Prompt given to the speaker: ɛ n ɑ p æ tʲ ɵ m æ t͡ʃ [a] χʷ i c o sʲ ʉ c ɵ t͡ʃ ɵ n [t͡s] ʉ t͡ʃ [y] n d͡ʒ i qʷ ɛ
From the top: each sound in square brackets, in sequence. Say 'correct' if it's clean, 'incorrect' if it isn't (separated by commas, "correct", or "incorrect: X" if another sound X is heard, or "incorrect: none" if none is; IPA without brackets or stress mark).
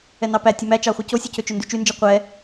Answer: incorrect: ɑ, incorrect: d, correct